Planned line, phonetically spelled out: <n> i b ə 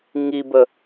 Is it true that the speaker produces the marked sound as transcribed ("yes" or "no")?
no